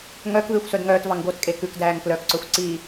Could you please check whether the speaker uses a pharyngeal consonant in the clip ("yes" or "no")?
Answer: no